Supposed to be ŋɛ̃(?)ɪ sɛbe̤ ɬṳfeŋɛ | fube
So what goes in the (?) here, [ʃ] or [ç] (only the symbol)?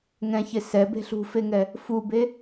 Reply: ç